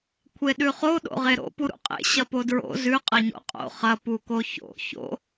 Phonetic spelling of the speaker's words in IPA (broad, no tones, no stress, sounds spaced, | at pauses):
kʷʰ e ɗ ʉ χ o ɗ o̰ ʁ e ɾ o̰ p u ɾ ṵ qʼ ḛ ɕ ɐ p o d ɹ o̰ z ʉ qʼ ɐ ɲ o̰ qʼ o̰ χ ɐ p u k o ç o̰ ç o̰